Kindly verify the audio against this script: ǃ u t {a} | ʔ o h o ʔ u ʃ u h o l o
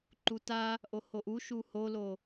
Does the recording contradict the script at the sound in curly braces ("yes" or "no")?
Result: no